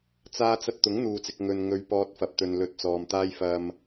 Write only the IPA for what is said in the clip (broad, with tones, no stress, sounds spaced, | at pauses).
t͡s aː˥ t͡s ɐ˥ t̚ t̪ ʊ˨˥ ŋ n̪ uː˨ t͡s ɪ˨ k̚ ŋ ɵ˨ n ŋ ɵ˨˧ ɥ p ɔː˧ t̚ f ɐ˨ p̚ t̪ ɵ˨ n l ɵ˧ t̚ t͡s ɔː˨ m t̪ aː˥ j f ɐ˧ m